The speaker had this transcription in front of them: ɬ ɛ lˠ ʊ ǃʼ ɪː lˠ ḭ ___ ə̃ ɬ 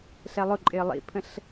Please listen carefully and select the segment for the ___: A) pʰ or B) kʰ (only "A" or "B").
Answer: A